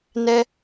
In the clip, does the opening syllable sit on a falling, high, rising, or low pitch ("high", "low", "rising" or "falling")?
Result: high